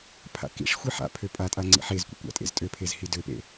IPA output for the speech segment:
pʰ a̰ k ḭ ʂ xʷ i ħ a̰ pʰ ø pʼ a tʼ a ŋ͡ǀ ḭ ħ e z kʷ ḛ kʷ a̰ tʼ ḛ z tʼ ø pʰ e z h i d ø p ḛ

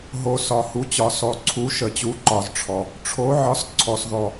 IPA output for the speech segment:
ɦ o˨ s ɒ˨ h u˨˥ t͡ɕ ɒ˨ s ɔ˨ ǀʰ u˨˥ ʃ ə˨ t͡ɕ u˨˥ ǃ ɒ˨ z ʈ͡ʂʰ ɔ˨ | ʈ͡ʂʰ o˨˥ ʕ ɒ˨˥ s ǀʰ ɔ˨ s ð ɔ˨

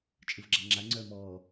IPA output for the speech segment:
t͡ʃʼ ɯ v ɡ͡ǁ a ŋ͡ǁ a ŋ͡ǀ œː m ɔː

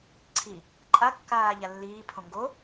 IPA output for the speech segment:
ǀʰ i | ǃʼ a kː aː ʎ a lː iː pʰ õ ŋ ɡ o

